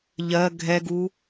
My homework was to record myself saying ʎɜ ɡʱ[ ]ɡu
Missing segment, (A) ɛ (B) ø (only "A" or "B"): A